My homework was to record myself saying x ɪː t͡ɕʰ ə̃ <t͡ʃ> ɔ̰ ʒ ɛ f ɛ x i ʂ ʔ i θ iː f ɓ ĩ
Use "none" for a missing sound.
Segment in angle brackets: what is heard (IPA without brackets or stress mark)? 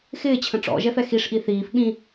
ʈ͡ʂ